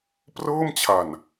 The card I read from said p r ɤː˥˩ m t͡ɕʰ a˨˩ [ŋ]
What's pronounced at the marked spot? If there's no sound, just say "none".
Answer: n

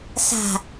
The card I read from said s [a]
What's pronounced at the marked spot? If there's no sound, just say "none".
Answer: a̤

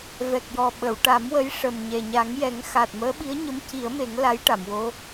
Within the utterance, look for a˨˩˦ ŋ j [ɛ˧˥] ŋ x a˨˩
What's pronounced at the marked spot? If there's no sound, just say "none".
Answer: ɛ˨˩˦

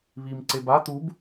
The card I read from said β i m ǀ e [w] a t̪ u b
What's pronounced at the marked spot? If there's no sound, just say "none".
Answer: b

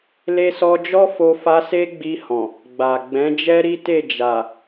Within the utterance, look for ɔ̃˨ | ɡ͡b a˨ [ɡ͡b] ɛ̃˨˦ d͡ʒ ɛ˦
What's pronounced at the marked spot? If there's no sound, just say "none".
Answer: ɡ͡b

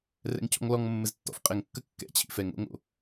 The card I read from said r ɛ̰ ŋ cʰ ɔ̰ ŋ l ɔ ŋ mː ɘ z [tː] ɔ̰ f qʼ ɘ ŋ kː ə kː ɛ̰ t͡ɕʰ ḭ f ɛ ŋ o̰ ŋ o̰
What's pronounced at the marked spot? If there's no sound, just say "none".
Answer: tː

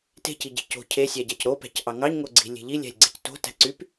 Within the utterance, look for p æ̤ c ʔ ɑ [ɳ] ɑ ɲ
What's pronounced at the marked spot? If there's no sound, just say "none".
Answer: ŋ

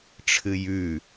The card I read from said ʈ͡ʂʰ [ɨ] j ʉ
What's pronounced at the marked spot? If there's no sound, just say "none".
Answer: ɨ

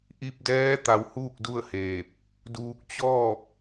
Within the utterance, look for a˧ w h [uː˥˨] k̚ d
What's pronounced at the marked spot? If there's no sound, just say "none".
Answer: uː˥˨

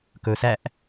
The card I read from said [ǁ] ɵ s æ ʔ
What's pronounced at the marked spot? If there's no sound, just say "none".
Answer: k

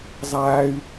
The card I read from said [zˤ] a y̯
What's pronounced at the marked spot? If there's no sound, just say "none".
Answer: zˤ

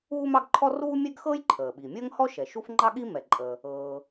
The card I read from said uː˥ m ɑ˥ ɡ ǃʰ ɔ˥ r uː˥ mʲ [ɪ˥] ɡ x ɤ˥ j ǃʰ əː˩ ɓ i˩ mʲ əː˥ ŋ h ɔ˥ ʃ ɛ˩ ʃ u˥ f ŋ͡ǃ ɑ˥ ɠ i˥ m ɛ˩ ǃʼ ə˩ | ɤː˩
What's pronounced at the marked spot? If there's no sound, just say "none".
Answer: ɛ˥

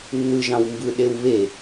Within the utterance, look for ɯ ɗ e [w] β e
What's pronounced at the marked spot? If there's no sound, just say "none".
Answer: w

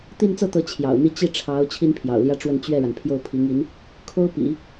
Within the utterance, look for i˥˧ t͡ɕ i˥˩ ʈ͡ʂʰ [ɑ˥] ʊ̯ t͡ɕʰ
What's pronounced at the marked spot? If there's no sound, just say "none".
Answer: ɑ˧˥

